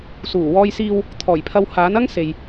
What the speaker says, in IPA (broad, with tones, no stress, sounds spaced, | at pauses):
s uː˨˩ w ɔː˧ j s iː˧ w | t̪ʰ ɔː˨˩ j pʰ ɐ˧ w h aː˨˥ n ɐ˥ ŋ s e˨ j